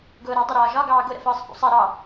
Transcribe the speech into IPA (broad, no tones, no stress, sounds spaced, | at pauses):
ɡ ʊː ɾ æ dˤ ə ɾ ɒː ʒ ɒ ɡ ɑː ɡ ʊ ɾ ə̰ f əː sˤ f ṵ sˤ ɛ ɾ ɑ